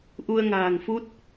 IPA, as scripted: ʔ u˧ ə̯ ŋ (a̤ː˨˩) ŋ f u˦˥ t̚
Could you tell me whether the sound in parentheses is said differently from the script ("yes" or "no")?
no